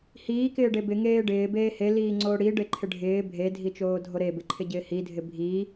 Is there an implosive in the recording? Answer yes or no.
no